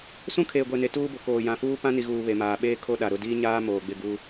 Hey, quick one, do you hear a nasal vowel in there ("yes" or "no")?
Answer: yes